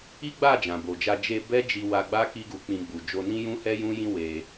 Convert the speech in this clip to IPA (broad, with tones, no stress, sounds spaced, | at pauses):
i˦ ɡ͡b a˦˨ d͡ʒ ã˨ b o˨ d͡ʒ a˧ d͡ʒ e˧ b ɛ˦ d͡ʒ i˧ w a˧ ɡ͡b a˦ k i˦ ɡ u˧ k͡p ĩ˧ ɡ͡b u˨ d͡ʒ o˧ n ĩ˦ j ũ˦ h ɛ˦ j ũ˦ j ĩ˦ w e˧